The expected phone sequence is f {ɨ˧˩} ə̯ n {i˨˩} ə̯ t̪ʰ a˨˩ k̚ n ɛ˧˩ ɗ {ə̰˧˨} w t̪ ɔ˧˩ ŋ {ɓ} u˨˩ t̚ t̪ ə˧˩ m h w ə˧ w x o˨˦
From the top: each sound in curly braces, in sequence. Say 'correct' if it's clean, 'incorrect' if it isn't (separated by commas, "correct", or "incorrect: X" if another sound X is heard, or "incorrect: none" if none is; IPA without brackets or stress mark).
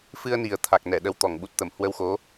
incorrect: ɨ˧, correct, incorrect: ə˧, correct